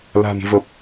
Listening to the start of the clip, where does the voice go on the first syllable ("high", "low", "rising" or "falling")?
low